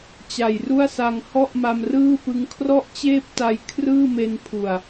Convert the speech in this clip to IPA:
t͡ɕa˨˩jru˥˩a̯sa˧ŋ hɔ˥˩ʔma˧mrɯː˥˩pɯ˦˥ŋ kʰrɔ˥˩ʔt͡ɕeː˥˩p̚ta˧j kʰrɯː˥˩me˧npʰu˨˩a̯

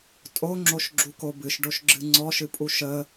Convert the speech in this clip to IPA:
tʼoŋ͡ǁoʃɡ͡ǁuko bɨʃɖoʃɡ͡ǁɨ ŋ͡ǀɔʃɨpʼu ʃə

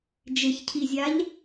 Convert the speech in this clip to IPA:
d͡ʒɪçcʰizʲaʎ

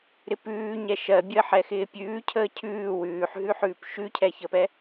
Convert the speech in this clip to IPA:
ɾɪpʉːɲɛ ʃɜbʲəːħ ɛxɪːpʲʉːcʰəː cʰʉː wʉːħɦʉħʉːp ʃʉcʰɛçəːpɛ

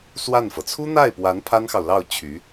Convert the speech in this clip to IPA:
swa˥˩nfɤ˩ t͡sʰu˥n̪a˥˩ɪ̯pwa˧˥n pʰa˥nxɑ˨ʊ̯lɑ˥˩ʊ̯ t͡ɕʰy˧˥

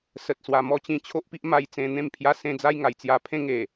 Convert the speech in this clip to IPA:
sə˨t̚swa˨˩ mɔ˦ t͡ɕĩ˧t͡ɕʰo˦ʔpi˦ʔma˧j t͡sẽ˧n̪ẽ˥˧m pʰja˧sẽ˧ d͡za˦jŋa˨˩jt͡sja˧pʰẽ˦ ŋe˨˩

